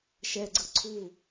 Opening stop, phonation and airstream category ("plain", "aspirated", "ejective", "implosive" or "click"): click